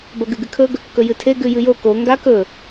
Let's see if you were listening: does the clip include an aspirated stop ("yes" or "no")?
yes